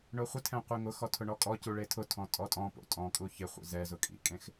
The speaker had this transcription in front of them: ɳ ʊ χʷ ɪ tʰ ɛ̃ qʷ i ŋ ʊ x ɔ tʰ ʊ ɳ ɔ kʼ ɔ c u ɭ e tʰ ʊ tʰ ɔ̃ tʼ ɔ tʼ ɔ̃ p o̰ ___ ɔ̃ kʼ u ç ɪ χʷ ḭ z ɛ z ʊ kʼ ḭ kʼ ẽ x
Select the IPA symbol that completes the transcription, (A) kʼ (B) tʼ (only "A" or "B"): B